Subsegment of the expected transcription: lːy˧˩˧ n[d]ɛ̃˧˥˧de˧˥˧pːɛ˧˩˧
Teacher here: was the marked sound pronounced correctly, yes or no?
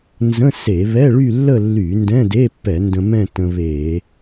yes